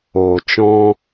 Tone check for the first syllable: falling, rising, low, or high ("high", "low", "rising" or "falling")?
low